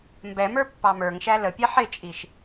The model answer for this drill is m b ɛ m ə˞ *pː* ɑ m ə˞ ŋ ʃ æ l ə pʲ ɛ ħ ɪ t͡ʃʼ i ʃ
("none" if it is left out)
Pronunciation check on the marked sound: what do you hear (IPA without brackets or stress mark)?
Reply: pː